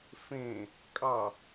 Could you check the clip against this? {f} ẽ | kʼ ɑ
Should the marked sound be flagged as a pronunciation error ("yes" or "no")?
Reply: no